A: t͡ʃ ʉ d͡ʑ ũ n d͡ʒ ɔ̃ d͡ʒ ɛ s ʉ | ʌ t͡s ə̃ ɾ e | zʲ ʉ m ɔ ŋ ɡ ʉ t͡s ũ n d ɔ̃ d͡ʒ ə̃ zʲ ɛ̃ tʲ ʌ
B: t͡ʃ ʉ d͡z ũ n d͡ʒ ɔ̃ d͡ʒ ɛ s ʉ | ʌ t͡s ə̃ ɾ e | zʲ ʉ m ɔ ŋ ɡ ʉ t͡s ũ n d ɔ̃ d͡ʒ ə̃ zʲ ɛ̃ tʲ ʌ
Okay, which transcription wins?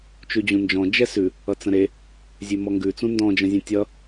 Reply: A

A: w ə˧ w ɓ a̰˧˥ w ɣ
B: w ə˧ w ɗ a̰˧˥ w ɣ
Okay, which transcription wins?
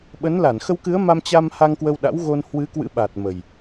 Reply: B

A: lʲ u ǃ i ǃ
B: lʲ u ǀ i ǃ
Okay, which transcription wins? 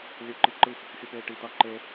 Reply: A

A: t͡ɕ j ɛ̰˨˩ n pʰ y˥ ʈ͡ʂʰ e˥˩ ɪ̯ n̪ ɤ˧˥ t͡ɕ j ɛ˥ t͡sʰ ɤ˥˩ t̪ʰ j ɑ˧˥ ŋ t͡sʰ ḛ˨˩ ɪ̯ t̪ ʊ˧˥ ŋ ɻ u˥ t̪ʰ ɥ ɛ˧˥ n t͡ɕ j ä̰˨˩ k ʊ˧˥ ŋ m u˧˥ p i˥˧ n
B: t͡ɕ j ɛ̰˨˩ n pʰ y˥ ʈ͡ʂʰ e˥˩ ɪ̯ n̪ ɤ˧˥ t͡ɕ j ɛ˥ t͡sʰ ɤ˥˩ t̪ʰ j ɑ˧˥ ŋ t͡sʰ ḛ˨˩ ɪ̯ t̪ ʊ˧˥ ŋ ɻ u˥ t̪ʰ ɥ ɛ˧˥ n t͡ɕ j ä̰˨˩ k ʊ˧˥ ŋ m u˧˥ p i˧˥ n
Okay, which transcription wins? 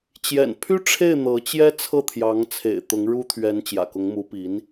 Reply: B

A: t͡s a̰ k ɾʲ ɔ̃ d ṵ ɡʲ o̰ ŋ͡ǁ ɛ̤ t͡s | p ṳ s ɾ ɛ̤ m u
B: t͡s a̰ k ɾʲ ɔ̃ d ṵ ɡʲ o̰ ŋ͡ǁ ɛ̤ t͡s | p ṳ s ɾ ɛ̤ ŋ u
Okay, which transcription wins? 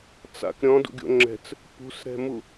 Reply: A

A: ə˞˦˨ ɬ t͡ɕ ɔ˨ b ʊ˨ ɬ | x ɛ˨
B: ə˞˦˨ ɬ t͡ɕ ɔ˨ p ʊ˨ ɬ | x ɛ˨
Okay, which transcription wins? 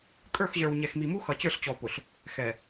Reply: B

